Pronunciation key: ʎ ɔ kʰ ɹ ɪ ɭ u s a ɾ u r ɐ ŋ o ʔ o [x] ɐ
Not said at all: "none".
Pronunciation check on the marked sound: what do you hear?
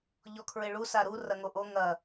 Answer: ŋ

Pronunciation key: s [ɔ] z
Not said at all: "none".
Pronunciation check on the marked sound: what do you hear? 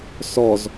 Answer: ɔ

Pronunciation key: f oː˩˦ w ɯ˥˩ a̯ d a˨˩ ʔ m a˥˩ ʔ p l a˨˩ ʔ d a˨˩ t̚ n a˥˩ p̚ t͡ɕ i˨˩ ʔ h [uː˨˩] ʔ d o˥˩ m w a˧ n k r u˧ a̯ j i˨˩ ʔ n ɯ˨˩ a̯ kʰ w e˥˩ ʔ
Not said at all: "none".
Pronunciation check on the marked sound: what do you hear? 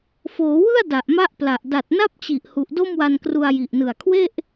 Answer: u˨˩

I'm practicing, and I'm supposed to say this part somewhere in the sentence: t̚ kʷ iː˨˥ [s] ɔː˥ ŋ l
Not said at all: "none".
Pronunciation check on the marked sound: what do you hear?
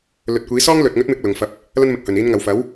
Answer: s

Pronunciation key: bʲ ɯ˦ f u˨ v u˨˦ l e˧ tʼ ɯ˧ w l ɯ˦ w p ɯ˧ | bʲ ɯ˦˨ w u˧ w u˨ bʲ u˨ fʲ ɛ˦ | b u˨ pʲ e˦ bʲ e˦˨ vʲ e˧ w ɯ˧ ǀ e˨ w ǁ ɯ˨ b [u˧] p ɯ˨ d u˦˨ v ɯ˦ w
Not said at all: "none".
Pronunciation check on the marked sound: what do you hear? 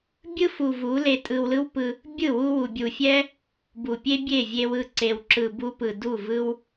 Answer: u˧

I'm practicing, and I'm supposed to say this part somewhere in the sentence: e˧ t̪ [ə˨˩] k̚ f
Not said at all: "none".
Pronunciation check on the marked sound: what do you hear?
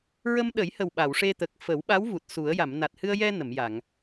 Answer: ə˨˩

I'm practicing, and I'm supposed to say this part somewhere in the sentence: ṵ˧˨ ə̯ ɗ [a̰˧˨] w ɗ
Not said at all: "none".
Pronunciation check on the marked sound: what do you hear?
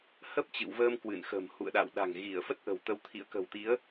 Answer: a̰˧˨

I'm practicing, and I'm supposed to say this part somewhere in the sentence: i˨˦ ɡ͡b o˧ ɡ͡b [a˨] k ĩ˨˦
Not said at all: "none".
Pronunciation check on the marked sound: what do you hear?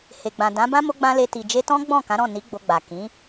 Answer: a˨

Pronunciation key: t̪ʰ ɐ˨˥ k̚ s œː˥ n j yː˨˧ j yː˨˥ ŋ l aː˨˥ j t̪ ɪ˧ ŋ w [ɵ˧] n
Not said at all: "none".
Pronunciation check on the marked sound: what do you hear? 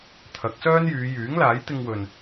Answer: ɵ˨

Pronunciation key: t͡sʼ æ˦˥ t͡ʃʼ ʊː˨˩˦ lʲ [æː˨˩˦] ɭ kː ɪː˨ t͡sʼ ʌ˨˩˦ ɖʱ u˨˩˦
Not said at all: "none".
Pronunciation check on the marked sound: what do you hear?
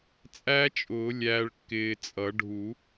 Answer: æː˨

